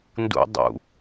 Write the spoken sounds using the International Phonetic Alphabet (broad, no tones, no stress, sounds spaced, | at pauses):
n d ṵ dˤ ṵ